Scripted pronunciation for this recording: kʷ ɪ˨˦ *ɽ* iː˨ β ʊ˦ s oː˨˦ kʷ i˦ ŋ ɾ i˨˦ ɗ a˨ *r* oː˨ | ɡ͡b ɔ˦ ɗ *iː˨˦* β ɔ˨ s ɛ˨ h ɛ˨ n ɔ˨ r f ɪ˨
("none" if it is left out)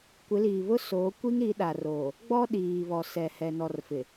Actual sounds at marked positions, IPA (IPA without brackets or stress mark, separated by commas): l, r, iː˨